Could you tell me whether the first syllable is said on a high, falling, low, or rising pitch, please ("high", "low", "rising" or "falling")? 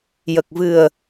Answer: low